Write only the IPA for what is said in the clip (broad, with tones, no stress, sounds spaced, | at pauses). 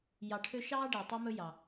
j ɑ˨ ʈʰ ø˦ ʃ ɑː˥ ɖ eː˩ tˤ e˦ m ɵ˦ j ɑ˩